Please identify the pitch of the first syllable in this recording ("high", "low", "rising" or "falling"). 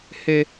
high